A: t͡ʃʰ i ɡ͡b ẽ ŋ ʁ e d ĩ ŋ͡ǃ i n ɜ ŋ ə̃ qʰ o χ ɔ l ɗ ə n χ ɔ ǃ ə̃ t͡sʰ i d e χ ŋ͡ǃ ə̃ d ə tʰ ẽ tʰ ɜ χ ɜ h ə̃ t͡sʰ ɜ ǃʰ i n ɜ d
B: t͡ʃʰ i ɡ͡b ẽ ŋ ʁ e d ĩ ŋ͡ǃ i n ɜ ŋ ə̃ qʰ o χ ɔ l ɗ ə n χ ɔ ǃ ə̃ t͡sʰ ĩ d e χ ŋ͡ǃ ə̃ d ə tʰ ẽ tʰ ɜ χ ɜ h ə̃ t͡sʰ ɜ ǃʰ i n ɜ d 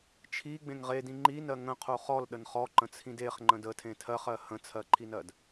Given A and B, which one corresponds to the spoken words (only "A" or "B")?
B